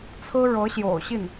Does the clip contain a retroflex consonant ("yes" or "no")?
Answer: yes